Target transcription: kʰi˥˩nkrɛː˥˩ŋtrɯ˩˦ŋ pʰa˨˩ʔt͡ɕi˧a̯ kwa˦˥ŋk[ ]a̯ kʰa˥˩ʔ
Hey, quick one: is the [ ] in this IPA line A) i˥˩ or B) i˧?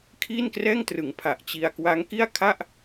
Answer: A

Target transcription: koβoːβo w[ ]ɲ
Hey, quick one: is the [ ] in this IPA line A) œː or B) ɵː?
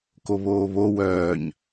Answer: A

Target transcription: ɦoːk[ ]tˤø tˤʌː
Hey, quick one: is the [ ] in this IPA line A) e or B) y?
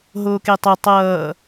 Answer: A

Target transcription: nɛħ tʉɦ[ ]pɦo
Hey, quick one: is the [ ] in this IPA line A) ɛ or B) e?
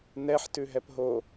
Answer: A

